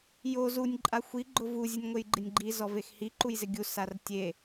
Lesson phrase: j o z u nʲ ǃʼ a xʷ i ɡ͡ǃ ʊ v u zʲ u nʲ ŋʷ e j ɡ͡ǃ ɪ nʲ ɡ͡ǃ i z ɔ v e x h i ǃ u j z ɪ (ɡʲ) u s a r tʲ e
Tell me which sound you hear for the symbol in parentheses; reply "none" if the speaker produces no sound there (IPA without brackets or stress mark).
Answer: ɡʲ